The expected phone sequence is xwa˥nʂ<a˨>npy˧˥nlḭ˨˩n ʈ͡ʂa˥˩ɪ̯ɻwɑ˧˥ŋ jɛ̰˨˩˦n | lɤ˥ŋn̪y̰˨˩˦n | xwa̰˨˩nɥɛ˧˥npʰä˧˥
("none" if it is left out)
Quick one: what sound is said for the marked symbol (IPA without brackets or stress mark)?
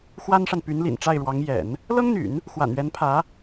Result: a˨